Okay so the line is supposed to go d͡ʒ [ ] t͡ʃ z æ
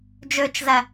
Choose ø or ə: ø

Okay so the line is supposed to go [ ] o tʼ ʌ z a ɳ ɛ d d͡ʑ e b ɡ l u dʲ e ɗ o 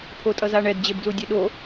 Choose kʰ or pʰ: pʰ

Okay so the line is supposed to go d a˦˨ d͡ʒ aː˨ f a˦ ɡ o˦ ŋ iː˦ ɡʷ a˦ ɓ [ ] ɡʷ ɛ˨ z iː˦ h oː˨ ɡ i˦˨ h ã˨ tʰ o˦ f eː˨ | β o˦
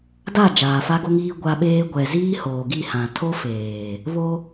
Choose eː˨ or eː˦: eː˦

